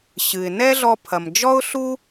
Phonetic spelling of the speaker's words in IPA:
ɕɨ˩ɪ̯ nɛ˥ɮɔ˧pʰɐ˩m d͡ʒɔ˥ʊ̯ɬu˥

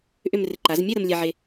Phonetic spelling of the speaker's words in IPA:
ʔʏ˥˧mrɪ˧ ǃa˩˧zmʲɛ˥˧ ɾə˧mlʲɛ˧ʕe˧

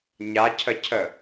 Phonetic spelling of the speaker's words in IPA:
ɲacʰəcʰə

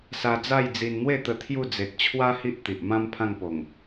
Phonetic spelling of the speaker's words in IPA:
sa˧d͡za˥˧jd͡zi˧n n̪we˥˧t̪ə˧ t̪ʰju˥˧ d͡ze˨t̚t͡ɕʰwa˦ hi˦ʔt̪i˨ʔmã˦m pʰã˥˧ŋpo˨˩ŋ

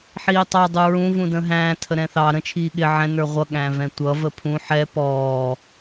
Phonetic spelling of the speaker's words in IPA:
ħiːtˤɑ dˤuɹũ vũdə̃ːɦæ̃ː tʰəɾɛ̃θɑ ɾə̃ t͡ʃʰiːɠɪ ʕɛ̃ nə˞ʁʷʌ ɠæ̃vɛ̃tʷʌ vəpʰũ ħɛ pɔː

